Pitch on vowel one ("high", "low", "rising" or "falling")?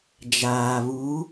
low